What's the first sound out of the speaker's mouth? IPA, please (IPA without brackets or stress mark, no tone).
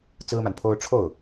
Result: t͡s